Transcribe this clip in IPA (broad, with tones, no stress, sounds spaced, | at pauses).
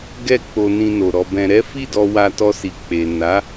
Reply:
ɡ ɛ˧ k͡p o˨ n ĩ˧ n o˨ ɾ ɔ˧ b ɛ̃˧ ɾ ɛ˦ f i˦˨ d ɔ˧ w a˧ t ɔ˧ s i˨ k͡p e˨ n a˨˦